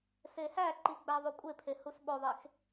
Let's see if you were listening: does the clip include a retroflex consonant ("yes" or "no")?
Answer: no